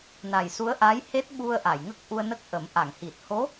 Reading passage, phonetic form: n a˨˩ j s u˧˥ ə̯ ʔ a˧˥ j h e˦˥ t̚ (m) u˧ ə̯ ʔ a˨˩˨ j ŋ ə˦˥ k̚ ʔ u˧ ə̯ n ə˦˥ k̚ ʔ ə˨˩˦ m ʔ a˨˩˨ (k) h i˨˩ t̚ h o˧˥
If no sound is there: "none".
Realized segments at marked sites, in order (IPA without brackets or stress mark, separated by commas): ɓ, ŋ